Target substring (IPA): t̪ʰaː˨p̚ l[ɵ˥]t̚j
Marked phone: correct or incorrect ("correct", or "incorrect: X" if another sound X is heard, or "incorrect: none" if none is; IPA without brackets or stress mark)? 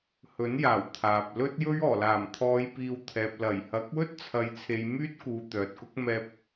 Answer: correct